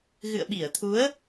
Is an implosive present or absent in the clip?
present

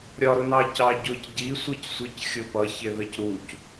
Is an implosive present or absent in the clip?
absent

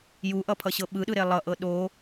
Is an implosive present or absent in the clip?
present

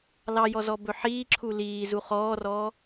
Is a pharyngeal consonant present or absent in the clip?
present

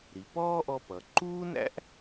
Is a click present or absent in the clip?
present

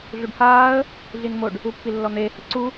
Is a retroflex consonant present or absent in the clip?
present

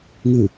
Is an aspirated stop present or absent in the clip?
absent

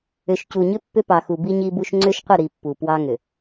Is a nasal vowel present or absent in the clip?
absent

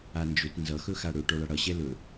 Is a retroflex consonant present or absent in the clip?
present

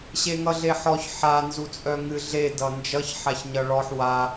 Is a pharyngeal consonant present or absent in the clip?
present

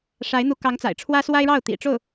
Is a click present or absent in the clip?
absent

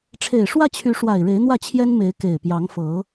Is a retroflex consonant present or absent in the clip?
present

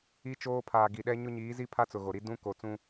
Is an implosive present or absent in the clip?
present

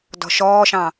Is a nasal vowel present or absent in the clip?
present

